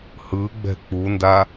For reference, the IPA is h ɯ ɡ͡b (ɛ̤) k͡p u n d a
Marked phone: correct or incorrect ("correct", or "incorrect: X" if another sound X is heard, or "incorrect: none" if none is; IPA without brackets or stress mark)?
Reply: correct